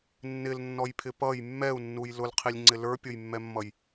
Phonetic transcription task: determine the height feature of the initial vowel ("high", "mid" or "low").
high